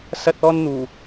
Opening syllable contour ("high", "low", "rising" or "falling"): high